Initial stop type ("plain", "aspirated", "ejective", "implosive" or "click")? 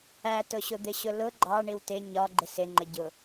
plain